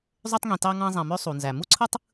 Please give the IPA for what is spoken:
zˤ ø˧ tˤ ŋ ĩ˩ t ɑ˧ ŋ ɑ̃˧ zˤ æ̃˩ m ø˧ sˤ u˩ n z æ˩ m u˥ ǀʰ ɯ˥ tˤ

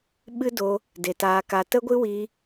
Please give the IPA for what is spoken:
ɓ ɨ˦ d o˧ | d e˨ t aː˧ k a˧ t ə˦ ɡʷ ɨ˦ w iː˧

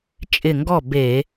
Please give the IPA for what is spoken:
t͡ʃʼ ɪ˧˩ ŋ ɡ ɔ˥˩ b e˧˩˧

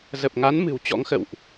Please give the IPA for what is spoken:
z ə˨˩ p̚ ŋ a˨˦ n m ɨ̤˨˩ w t͡ɕ ɔ̰˧˥ ŋ x ə̰˧˨ w ʔ

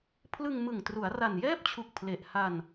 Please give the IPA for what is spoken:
pʰ l ɯ˧ ŋ m ɯ˨˩ ŋ t r u˩˦ a̯ r a˨˩ n j ɛː˥˩ p̚ t͡ɕʰ u˨˩ k̚ pʰ l e˨˩ ʔ h a˧ n

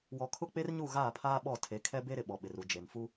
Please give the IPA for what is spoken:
w ɔ˨ kʰ ʊ˦˨ k͡p e˦ r ɲ u˦˨ ɣ aː˦˨ pʰ aː˦ ɓ ɔ˦˨ tʰ e˨˦ kʰ ɛ˦ b e˦ ɾ ɪ˨ ɓ ɔ˨ ɓ ɪ˨ r u˨ d͡ʒ e˨ n f u˦

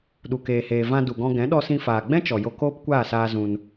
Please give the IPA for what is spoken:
ɗ u˨ k eː˨ h eː˨ v ã˧ d u˨ ɡ ɔ̃˧ ɡ ɛ̃˨˦ ɗ ɔ˧ s ĩ˧ f aː˨ ɡ͡b ɛ̃˦ t͡ʃ ɔ˨ j o˧ k oː˦ p kʷ aː˦˨ s aː˧ z ũ˧ n

